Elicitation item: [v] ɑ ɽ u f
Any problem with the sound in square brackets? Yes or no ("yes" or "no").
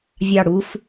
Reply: yes